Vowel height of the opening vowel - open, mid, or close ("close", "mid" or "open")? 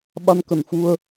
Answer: open